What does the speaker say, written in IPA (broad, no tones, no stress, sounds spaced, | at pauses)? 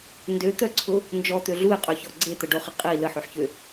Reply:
n d ø t̪ œ ǀʰ ʊ | n d͡ʒ ɔ t̪ ø ɮ u e̯ qʼ ø ç ɔ ɡ͡ǀ e t̪ ə ɖ o χ ə qʼ i l ə ħ ø ħ ç ø